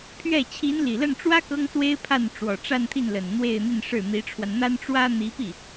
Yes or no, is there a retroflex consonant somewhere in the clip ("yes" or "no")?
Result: yes